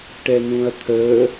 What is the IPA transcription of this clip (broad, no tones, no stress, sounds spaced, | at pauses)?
ʈ ɛ n ũ ɐ̯ t̪ʰ əː